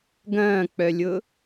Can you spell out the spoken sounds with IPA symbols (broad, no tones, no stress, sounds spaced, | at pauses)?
ɡ ɐ̃ː k͡p œ lʲ ʊ